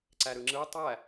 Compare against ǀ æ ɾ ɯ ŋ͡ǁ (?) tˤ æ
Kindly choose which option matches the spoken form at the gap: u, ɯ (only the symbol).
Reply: ɯ